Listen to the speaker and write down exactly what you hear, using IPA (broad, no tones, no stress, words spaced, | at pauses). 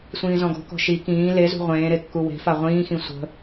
sʷĩːzɔ̃ɡɔ̤kɔ̤ ʃi kĩː lezṳ ʁʷẽːɾe kːuwe̤fa ʁʷĩːxĩ sʷə̤